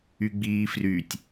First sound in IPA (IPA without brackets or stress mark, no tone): y